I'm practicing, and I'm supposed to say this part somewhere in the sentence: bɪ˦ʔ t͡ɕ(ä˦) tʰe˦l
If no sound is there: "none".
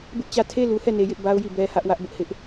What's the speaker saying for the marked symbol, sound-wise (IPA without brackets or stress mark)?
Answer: ä˦˨